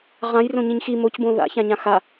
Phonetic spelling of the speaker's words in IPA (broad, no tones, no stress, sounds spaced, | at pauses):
ʁ ã j r õ ɲ ĩ ɲ x i m o c b õ ð a̰ ç ã ɲ ã x a